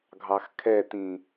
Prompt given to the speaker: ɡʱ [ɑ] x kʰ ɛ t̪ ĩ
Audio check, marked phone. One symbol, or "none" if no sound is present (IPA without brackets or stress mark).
ɑ